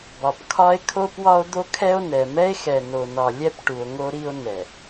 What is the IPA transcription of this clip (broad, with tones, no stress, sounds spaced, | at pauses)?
b ɒ˨ p kʰ ɒ˦ e̯ kʰ o˦ p w ɒ˦ o̯ d̪ o˦ kʰ ɛ˦ o̯ n ɛ˨ m ɛ˦ e̯ x ɛ˨ n o˨ n ɒ˨ lʲ ɛ˦ p ʈ u˨ o̯ ŋ o˦ ɾ i˦ o̯ n ɛ˨